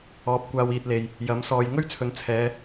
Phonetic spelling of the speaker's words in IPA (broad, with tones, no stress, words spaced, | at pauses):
ɔː˨˥p̚kʷaː˧wiː˧t̚le˨j | jɐ˨˥msɔː˧j ŋɵ˥ɥt͡sʰɵ˨n t͡sʰɛː˨˧